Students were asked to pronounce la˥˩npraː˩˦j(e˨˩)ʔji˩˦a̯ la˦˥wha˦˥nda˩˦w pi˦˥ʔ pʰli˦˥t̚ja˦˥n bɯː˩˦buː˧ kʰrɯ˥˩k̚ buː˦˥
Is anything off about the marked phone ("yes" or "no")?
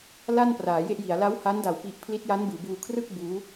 yes